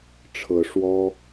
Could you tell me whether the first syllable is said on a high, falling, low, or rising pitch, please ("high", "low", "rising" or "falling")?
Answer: rising